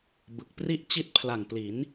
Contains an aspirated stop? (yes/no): yes